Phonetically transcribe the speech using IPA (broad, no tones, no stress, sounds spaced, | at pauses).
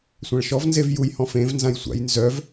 sʷ ã ɭ ʃ ɔ v n z e v j u j h ɔ̃ f ẽ v n z ã j sʷ a̰ j n z œ v